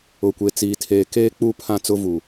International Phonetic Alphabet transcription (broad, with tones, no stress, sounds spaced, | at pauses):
ʊ˨ kʷ e˨ t͡s iː˨ tʰ eː˨ k eː˦ k͡p u˦ pʰ ã˦ t͡s ʊ˦ v u˨